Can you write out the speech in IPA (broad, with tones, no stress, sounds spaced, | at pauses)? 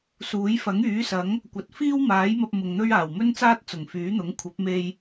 s uː˨˥ j f ɐ˨˥ ŋ yː˨˥ s ɐ˨˥ ŋ | kʷ ɐ˨˥ t̚ f iː˥ w m aː˨˥ j m ɐ˧ p̚ m ʊ˨ ŋ n̪ ɵ˥ ɥ aː˨˩ w m ɵ˥ n t͡s aː˥ t̚ t͡s ʊ˨˩ ŋ f yː˨˥ n̪ ʊ˨˥ ŋ kʷʰ ɐ˨˥ p̚ m e˧ j